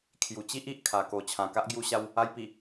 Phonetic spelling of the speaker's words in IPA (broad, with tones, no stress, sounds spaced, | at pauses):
kʰ j u˨˩ t͡ɕ i˦ ʔ i˨ ʔ kʰ a˨˩ k o˨˩ t͡ɕʰ ã˨˩ k a˦ ʔ ɡ j u˧ ɕ a˧ w | a˧ j p i˨˩